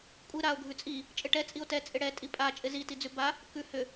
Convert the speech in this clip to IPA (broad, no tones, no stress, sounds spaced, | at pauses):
kʷʼ ɪ ɾ a o̯ ɡʱ ʉ t͡sʼ i | t͡ʃʼ ɪ ʈ ɛ t͡sʼ i o̯ t ɛ t͡sʼ ɪ ɽ ɛ tʼ i pʼ a t͡ʃʼ ɪ z i t i d͡z ʉ b a | k ʉ h ʏ